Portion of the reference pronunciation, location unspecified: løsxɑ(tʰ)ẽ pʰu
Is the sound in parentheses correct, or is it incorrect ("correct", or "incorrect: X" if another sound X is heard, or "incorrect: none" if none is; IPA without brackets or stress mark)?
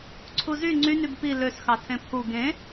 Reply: correct